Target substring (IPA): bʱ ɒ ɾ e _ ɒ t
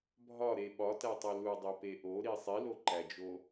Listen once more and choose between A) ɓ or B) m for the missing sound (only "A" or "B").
A